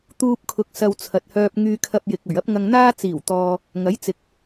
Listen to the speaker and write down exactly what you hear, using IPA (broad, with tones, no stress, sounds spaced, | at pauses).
t̪ uː˧ p̚ kʰ ʊ˨ k̚ s ɐ˧ w t͡sʰ ɐ˨ t̚ h œː˧ p̚ ŋ yː˧ kʰ ɐ˧ p̚ j ɪ˨ k̚ ɵ˨˩ ɥ ɐ˥ p̚ ŋ ɐ˧ ŋ n̪ aː˥ t͡s iː˨˩ w t̪ ɔː˨ | ŋ ɐ˨˥ j t͡s ɪ˨ k̚